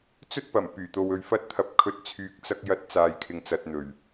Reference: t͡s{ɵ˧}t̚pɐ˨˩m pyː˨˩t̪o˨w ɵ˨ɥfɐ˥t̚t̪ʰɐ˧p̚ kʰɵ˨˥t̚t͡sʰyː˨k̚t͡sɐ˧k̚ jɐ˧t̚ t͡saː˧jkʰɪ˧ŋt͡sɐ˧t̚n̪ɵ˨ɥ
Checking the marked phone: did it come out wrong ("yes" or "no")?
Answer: yes